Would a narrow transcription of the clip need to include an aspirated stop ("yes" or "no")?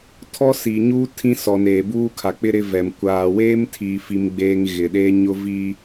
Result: yes